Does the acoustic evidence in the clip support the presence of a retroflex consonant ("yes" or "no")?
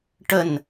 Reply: yes